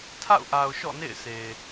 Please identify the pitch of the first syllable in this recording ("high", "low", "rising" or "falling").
falling